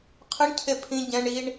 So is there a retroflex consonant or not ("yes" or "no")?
yes